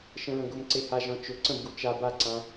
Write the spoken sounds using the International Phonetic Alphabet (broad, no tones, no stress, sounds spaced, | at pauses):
ʃ ə̃ ɹ ə̃ ɡ ʊ m ǀ e h a ʒ ɔ̃ t͡ʃ ʊ ǀ ə̃ b ɡ u t͡ʃ a b a ǀ ã